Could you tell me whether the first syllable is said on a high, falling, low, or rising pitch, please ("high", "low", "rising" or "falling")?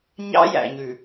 high